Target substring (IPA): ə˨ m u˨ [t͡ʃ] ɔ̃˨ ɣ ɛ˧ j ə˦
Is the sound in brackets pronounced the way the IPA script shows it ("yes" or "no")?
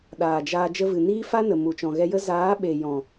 yes